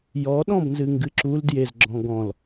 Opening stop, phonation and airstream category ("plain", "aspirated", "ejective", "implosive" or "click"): implosive